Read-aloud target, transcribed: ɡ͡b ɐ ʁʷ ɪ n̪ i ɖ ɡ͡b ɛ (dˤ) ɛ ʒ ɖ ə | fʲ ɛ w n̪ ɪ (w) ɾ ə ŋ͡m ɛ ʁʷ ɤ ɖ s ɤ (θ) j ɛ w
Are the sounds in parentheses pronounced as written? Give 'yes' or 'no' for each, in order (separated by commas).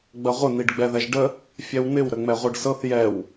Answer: no, yes, yes